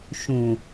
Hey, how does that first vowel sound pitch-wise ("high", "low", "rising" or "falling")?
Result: low